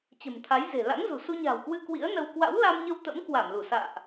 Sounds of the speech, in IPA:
t͡ɕ ə̤˨˩ m t̪ʰ a˨˦ j z e̤˨˩ l a̰˧˥ ŋ z ṳ˨˩ s u˧ ɲ a̤ː˨˩ w k w ɨ˧ k w ḭ˧˥ ə̯ n ə˧ w k w a̰˧˥ w l a˧ m ɲ ə˧ w t̪ ə̰˧˥ m k w a˧˩ m l u˧˩ s a̰ː˧˨ ʔ

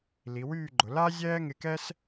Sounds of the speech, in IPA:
l i˩˧ w yː˥˧ ɡ͡ǃ ʊ˩˧ l a˥ zʲ ɛː˥ ŋ ɪ˧ k ɛ˥ s

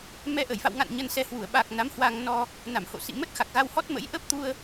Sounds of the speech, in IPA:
m ɛ˧ ʔ ə˧˩ j f a̰˧˨ w ŋ a̰˧˨ n ɲ ə˧ n s ɛ˧ h w u˧˩ ə̯ ɓ a˨˩ k̚ n a˨˦ m h w a˧ ŋ n ɔ˧ | n a˧˩ m h o̰˧˨ s ḭ˧˨ m ə˦˥ t̚ x a˨˩ k̚ ɣ a˧ w h ɔ˦˥ t̚ m ə̰˧˥ j ʔ ə˦˥ p̚ t̪ u˧ ə̯

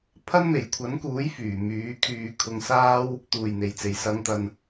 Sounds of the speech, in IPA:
pʰ ɐ˥ n m e˨˩ j kʷʰ ɐ˨˥ n k uː˨˥ j f yː˨˩ m yː˨˥ kʰ yː˧ kʰ ʊ˧ ŋ s aː˥ w | t̪ uː˨˩ j n̪ e˨˩ j t͡s e˨˩ j s ɐ˨˧ ŋ t̪ ɐ˨ n

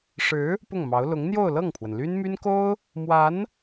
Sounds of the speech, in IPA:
ʂ ɻ̩˧˥ | p ʊ˥˩ ŋ m ɑ˧˥ ʊ̯ l ʊ˧˥ ŋ n̪ j o˥˧ ʊ̯ l ɤ˥˩ ŋ pʰ w ə˩ n l y˥ n m y˥ n k o˥ ʊ̯ | m w a˧˥ n

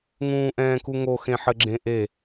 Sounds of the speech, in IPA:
ŋ ũː ʔ ɛ̃ː k u ŋ o x ẽ ħ ɘ ɡ͡ǁ ẽ ʔ e

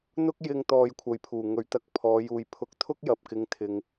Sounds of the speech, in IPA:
n̪ ʊ˥ k̚ j ɪ˧ ŋ t̪ ɔː˧ j kʷʰ ɐ˨ j pʰ uː˨˩ ŋ ɵ˨˩ ɥ t̪ ɐ˨˥ k̚ pʰ ɔː˨˧ j uː˨ j pʰ ʊ˨˥ k̚ t̪ʰ ʊ˥ k̚ j ɐ˨ p̚ k ɪ˨˧ ŋ t̪ʰ ɪ˨ ŋ

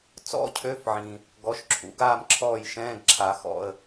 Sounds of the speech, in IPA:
t͡s ɔ̰˧˥˧ cʰ ø˧˥˧ f ʕ ĩ˩ | ɡ ɔ˩˥ ʃ ǁʰ ṵ˨˩˦ ɡ aː˥˨ m ǁʰ ɔː˥˨ j ʃ ɛ̃ː˧˥˧ ɡ ǁʰ a˨˩˦ x ɔ̰˥˨ ə̯

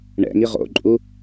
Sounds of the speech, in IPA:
ɳ ɛ̰ ŋ i ʁ o̰ ǃʼ u

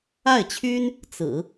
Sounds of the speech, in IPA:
a˥˩ ɪ̯ t͡ɕʰ y˥ n | t͡s ɹ̩˨˩˦

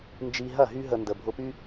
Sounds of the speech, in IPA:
n d͡ʒ i˧ ɦ ɐ˦˨ ɦ y˦ ɦ ə˧ n d ə˨ bʱ ʊ˧ p y˦

